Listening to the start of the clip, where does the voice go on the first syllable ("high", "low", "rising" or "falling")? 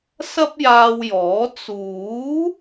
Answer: high